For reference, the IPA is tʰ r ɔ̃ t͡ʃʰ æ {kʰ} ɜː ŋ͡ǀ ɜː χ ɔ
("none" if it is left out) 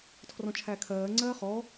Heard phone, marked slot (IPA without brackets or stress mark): kʰ